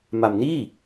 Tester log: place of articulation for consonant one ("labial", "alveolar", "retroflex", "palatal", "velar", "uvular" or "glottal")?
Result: labial